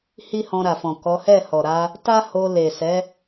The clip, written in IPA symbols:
h i˦ h ɔ̃˧ ɾ a˨ f ɔ̃˨ k ɔ˨˦ h ɛ˦˨ h ɔ˨ ɾ a˧ | t a˦ h o˧ l e˨ s ɛ˨˦

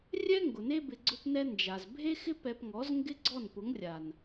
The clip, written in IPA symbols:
rʲ ɛ˦ ŋ ɡ ʊ˨ n e˦ b ɪ˧ ɡ͡ǀ ʊ˦ p n ɛ˦ n d͡ʒ a˨ z bʱ e˦ x ɪ˦ p ɛ˧ p ŋ ɔ˨˦ z ŋ ɡ ɪ˦ ɡ͡ǀ ɔ˦˨ n p ʊ˨˦ ŋ rʲ a˨ n

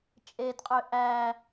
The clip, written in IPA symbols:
t͡ʃʼ e d qʼ ø ʔ æ

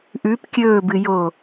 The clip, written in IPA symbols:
ʔ ʉ p kʲ ɵː b ɨ j oː

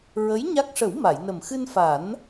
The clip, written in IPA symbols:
ɹ ə˧˥ j ɲ a˦˥ k̚ ʂ ə˨˩˦ w m a˨˩˨ j n ə˨˩ m x ɨ˧ n f a˨˩˦ n

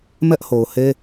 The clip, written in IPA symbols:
m ɛ˦ ʔ h o˨ ʊ̯ h e˦

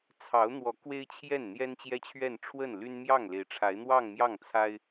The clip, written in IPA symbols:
t͡sʰ ɑ˧˥ ʊ̯ n̪ w ɔ˧˥ k w e˥ ɪ̯ t͡ɕʰ j ɛ˥˩ n n̪ j ɛ˥ n t͡ɕ j ɛ˥ t͡ɕʰ ɥ ɛ˥˧ n ʈ͡ʂʰ w ə˥˩ n l y˥ n m j ɑ˥˩ ŋ l e˧˥ ɪ̯ ʈ͡ʂʰ a˧˥ ɪ̯ n̪ w ɑ˥˧ ŋ m j ɑ˥˩ ŋ t͡sʰ a˥ ɪ̯

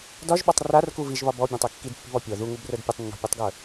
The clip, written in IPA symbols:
d ɒ ʒ ɓ ɒ tˤ r a r k u v i ʒ β ɒ b ɔ bʲ ẽ tˤ e kː i d pː i̤ β ɔ pʲ ɔ ð u ŋ u b r ə˞ d pʲ ə tˤ nː ɔ̤ pʲ u tˤ ɡ ə˞

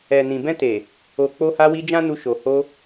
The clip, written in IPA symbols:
ɛ˨ n ĩ˨ b ɛ̃˧ t e˨ | o˨ k͡p o˧ h a˧ w i˧ d͡ʒ ã˦ n u˧ ʃ o˨ h o˧

